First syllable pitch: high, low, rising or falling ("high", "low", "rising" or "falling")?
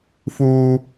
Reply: low